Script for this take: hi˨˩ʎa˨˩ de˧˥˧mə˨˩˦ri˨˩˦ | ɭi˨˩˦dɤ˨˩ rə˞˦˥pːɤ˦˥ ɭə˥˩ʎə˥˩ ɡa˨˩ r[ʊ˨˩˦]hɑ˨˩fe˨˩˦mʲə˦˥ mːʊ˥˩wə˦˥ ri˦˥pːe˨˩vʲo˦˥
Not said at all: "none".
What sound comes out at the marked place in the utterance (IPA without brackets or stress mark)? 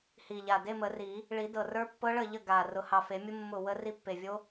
ʊ˨˩˦